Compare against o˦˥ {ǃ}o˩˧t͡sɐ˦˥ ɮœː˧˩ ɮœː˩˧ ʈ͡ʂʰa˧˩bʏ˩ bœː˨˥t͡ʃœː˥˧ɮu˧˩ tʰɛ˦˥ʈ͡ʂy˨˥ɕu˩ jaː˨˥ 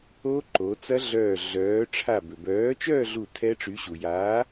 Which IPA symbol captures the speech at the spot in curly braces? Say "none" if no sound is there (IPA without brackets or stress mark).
ǃ